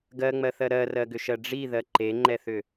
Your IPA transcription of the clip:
ɡ ɜ ŋ͡m ɜ θ ɜ ɾ ɜ r ɜ ɡ ʏ ʃ ɜ ɖ͡ʐ i ð ɜ ǃ e ŋ͡ǃ ɛ θ ʏ

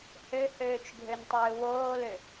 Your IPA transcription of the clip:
h ø h øː t͡ʃ ɡʱ ø n tˤ øː w oː l ø

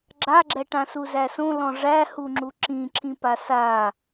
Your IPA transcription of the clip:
ɡ͡ǁ a ɡ͡ǁ ɛ ʈ ã s u z æ s õ l ɔ̃ ʐ æ h u ŋ͡ǁ u ǁ ĩ ǁʰ ĩ p a s a

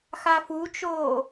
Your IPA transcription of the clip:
x a f u t͡ʃ oː

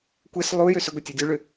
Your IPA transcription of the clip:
kʷ e s lˠ u j ø s ʏ ɡʷ e tʲ u dʲ u ɭ ʏ

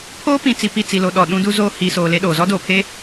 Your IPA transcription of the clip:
pʰ oː˦ p ĩ˨ t͡s i˨ p i˦˨ t͡s i˨ l o˨ ɗ ɔ˨ ɗ ũ˦ d u˦ z oː˦ h i˨ s oː˨ l e˦ ɗ oː˨ z ɔ˦ d oː˨ pʰ e˦

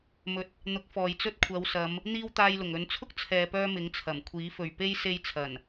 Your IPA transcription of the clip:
m ɵ˨˥ t̚ | n̪ ʊ˨˥ k̚ f ɔː˨ j t͡s ɵ˥ t̚ kʷʰ ɐ˨˧ w s ɐ˨˧ m | n̪ iː˥ w t̪ aː˧ j l ʊ˨˩ ŋ ɵ˨˧ n t͡sʰ ʊ˥ k̚ t͡sʰ ɛː˨ p œː˥ m ɪ˨˥ ŋ t͡sʰ ɐ˨˩ m kʷʰ iː˨˥ f ɵ˨ ɥ p e˥ j s e˧ j t͡sʰ ɐ˨˩ n

